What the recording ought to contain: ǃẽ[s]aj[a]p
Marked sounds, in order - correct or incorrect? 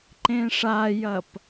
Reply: incorrect, incorrect

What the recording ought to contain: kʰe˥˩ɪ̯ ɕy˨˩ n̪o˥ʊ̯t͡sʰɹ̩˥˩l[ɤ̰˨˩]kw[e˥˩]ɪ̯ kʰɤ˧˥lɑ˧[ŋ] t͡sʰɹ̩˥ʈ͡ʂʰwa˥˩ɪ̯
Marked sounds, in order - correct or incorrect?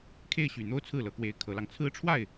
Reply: incorrect, incorrect, correct

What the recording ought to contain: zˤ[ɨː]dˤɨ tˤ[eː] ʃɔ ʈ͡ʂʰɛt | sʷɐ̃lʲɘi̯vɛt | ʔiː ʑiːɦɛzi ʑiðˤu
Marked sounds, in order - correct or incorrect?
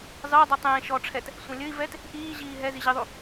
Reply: correct, incorrect

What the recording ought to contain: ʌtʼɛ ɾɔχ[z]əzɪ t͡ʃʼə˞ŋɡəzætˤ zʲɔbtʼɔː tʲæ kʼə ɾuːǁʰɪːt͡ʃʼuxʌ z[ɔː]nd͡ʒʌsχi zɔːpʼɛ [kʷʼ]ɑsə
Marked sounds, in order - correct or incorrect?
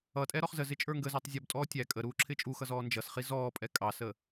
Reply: correct, correct, incorrect

